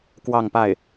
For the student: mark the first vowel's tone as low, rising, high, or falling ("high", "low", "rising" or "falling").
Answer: falling